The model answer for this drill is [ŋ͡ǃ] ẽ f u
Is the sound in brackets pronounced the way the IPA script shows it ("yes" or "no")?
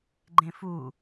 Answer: no